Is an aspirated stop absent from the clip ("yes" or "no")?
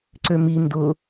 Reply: yes